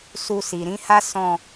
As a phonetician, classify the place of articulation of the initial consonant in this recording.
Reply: alveolar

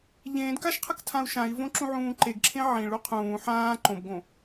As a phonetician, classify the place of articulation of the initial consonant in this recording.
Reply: palatal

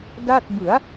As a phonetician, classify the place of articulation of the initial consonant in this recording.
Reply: alveolar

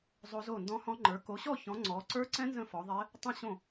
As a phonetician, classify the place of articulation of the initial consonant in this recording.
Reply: alveolar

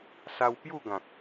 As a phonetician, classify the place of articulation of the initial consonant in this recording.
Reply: alveolar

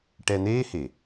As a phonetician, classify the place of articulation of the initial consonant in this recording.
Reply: retroflex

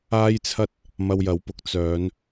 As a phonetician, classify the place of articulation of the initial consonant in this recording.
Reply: palatal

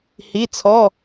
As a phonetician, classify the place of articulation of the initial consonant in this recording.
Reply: glottal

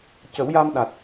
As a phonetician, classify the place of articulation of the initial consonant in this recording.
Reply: palatal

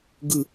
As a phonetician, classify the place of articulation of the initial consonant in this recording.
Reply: velar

